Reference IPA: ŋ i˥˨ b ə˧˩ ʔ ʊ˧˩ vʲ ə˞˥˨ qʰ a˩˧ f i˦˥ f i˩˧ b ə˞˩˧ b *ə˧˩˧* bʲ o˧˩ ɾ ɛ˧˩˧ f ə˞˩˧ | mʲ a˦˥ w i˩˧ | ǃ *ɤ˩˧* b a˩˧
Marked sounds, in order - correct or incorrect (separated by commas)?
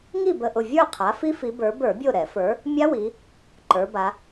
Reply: incorrect, incorrect